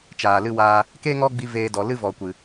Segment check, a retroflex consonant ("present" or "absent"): absent